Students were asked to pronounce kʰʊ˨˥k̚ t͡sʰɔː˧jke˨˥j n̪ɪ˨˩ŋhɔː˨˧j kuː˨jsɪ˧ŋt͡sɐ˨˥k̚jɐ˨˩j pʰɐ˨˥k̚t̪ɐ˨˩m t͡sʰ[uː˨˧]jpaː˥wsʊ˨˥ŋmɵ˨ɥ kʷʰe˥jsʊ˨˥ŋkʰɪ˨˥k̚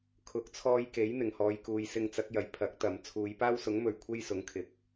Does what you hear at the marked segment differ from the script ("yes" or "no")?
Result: no